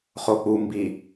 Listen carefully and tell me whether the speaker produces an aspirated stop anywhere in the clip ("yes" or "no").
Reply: no